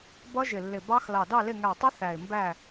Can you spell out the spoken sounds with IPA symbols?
b ʌ˦˥ ʒ ɪ˧˩ lː ɪ˧˩ b ɑ˦˥ x l ɑ˧˩ d ɑ˥˨ l ɪ˥˨ ŋ æ˧˩ tˤ ɪ˦˥ θ æ˧˩ ɪ̯ m b æ˥˨

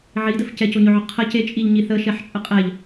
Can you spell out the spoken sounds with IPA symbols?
ʕ i d ə f c ɛ c o ɲ ɵ ʕ ɵ qʰ ə c e t͡ʃʼ i ʎ ɲ i θ ə ʃ ɛ ħ t͡ʃʼ ə qʼ ɛ ʎ

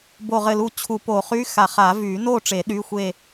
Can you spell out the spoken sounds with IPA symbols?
b o˧˩ ʁ ɘ˧˩ l u˧˩ t͡ɕʰ u˨˩˦ p o˨˩˦ χ y˧˥˧ x a˨˩˦ χ a˨˩˦ v y˨˩˦ n o˥˨ ʈ͡ʂ e˨˩˦ ɗ y˧˥˧ xʷ e˥˨

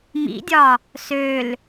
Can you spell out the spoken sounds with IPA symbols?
m ḭ dʲ ɒ | s ø l

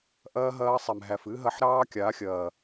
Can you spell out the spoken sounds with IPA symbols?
ʔ ɐː˦ ɦ ɐː˦ sˤ ɛ˨ m ɦ æ˨ f ɨ˦ ɦ ɐ˦ ħ ɾ ɑː˦ kʲ a˨˦ xʲ ɐː˨

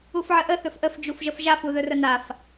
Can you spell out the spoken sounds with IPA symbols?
u f ʕ ə ʔ ə θ ɵ f ʔ ə f d͡ʒ u f ʒ ə f ʒ a f u ð ɵ r ə n a f

